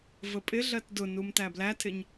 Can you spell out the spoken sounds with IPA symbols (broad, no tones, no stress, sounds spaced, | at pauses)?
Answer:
v ə pʼ ɪ ɮ ɜ t d ʊ n u m t æ b l æ tʰ ɪ ɲ